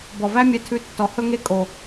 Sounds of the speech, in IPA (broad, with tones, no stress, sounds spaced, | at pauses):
b ɔ˨ v æ˦ mʲ ɛ˧ tʰ ʉ˧ tː ɔ˨ h ɵ˦ ŋ e˦ kʼ o˨